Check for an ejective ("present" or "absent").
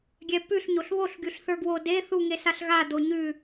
absent